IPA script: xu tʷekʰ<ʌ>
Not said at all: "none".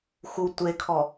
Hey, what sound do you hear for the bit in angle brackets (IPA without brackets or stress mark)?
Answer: ɔ